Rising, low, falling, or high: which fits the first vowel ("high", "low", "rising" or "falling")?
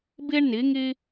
high